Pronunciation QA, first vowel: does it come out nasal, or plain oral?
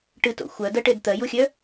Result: oral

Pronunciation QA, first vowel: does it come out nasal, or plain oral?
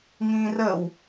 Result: nasal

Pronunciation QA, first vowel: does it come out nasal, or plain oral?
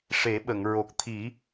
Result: oral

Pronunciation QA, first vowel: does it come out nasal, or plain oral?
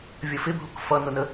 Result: oral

